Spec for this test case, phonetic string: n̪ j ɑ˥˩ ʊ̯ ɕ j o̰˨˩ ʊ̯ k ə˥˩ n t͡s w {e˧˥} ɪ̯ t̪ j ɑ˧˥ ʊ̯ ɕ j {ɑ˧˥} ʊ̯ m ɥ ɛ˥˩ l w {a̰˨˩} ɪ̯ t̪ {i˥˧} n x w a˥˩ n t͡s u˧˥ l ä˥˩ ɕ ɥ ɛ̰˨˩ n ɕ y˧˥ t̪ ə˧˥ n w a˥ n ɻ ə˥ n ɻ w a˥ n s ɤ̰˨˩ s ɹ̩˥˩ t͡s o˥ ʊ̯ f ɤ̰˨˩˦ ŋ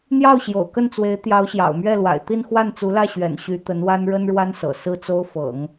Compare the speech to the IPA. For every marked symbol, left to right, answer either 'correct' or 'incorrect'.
correct, incorrect: ɑ̰˨˩, correct, correct

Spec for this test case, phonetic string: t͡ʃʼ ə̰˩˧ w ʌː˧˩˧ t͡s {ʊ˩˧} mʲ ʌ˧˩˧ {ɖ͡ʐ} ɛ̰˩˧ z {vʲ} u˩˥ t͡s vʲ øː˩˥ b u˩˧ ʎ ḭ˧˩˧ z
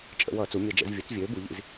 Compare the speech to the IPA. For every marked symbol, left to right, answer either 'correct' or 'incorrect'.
incorrect: u˩˧, incorrect: d͡ʒ, correct

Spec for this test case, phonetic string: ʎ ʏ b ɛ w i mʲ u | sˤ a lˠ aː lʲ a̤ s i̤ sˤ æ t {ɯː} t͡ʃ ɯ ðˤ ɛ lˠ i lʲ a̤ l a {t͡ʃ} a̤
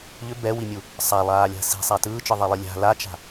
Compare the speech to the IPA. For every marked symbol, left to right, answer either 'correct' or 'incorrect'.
correct, correct

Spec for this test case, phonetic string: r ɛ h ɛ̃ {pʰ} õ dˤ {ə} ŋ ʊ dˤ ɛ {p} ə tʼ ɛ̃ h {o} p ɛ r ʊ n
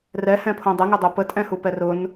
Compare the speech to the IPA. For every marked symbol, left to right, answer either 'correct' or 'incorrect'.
correct, correct, correct, incorrect: u

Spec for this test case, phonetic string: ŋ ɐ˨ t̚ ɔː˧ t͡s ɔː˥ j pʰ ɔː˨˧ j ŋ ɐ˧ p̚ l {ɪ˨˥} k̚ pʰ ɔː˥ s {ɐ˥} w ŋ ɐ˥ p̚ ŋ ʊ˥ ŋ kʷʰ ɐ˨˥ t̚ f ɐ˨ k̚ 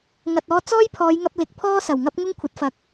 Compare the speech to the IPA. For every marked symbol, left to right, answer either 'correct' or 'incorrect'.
correct, incorrect: ɐ˨˩

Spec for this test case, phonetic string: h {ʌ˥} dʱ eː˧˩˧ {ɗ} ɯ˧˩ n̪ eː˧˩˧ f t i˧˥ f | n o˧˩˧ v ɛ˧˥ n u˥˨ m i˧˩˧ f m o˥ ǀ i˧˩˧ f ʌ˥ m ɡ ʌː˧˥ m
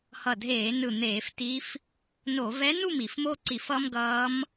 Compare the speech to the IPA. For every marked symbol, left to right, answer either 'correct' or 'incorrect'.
incorrect: ʌ˧˩, incorrect: n

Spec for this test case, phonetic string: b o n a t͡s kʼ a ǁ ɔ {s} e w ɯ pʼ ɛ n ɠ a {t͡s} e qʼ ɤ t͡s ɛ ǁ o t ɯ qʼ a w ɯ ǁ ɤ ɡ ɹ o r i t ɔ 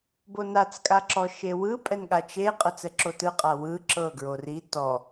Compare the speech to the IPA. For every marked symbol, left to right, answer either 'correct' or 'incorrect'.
incorrect: ʃ, incorrect: t͡ʃ

